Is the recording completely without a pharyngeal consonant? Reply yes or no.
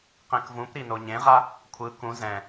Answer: yes